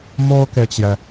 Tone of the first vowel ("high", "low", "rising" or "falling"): high